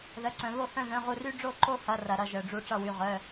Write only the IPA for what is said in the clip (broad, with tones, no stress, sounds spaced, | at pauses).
ð ə˩˧˩ ǀ œ̃˩ β o˥˩ h œ̃˥˩ ð œ̃˩˧˩ ʁ u˧˩ r y˥˧ ɖ͡ʐ o˥˩ ǃ o˥˧ h ɐ˩˧˩ r ɐ˩ ɾ ʌ˧˩ ʒ œ˩ ɖ͡ʐ u˧˩ ʈ͡ʂ ʌ˧˩ w y˩˧˩ ʁ œ˩˧˩